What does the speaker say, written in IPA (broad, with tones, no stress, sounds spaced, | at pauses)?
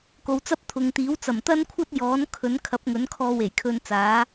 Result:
k o˨ w t͡s ɐ˥ p̚ t̪ʰ ʊ˨ ŋ t̪ iː˨˥ w t͡s ɐ˨˩ m t̪ ɐ˥ n kʷʰ ɐ˥ t̚ j ɔː˨˥ n kʰ ɵ˨˥ n kʰ ɐ˨˥ p̚ ŋ ɵ˨˥ n kʰ ɔː˧ w e˨˩ j kʰ ɵ˧ n t͡s aː˨˥